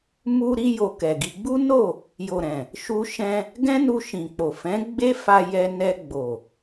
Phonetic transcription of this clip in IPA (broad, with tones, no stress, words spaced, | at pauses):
mu˧ɾi˧jo˨ kɛ˨ɡi˧ ɡ͡bu˦no˦˨ | jo˨ɾɛ̃˨ | ʃu˧ʃɛ̃˧ | ɡɛ̃˦nu˧ʃĩ˨k͡po˨ fɛ̃˨˦ ɡ͡be˦ fa˧ jɛ˧ nɛ˧ɡ͡bo˨